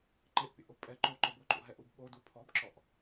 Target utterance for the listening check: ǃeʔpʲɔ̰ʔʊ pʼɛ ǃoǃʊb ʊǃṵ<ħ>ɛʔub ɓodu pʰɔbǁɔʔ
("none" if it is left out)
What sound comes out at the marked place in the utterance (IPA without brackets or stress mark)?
ɦ